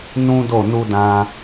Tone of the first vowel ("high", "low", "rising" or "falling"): high